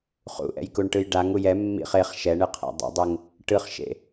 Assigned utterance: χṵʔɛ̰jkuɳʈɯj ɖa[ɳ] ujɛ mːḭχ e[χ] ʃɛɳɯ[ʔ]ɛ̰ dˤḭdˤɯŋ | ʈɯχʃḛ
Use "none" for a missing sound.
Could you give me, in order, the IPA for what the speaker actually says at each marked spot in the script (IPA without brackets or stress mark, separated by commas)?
ŋ, χ, qʰ